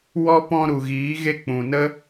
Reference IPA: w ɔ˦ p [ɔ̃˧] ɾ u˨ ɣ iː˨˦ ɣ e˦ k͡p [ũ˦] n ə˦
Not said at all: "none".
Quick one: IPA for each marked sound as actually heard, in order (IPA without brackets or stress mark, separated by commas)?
ɔ̃˧, ũ˨